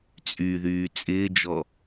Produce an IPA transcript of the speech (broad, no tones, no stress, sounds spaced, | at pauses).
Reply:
t͡sʼ y ð yː t͡sʼ ɪː d͡ʒ ɔ